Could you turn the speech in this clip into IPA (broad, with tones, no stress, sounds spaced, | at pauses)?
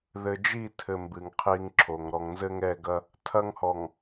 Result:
ð ɘ˨ d͡ʒ i˦˨ tʰ ɘ˨ m b ɨ˨ ŋ qʰ i˦ ŋ ǁʰ o˨ ŋ ɾ ɔ˨ ŋ n z ɘ˦ ŋ ɛ˦˨ ɡ ɐ˦ | tʰ ɐ˦ ŋ h ɔ˨ ŋ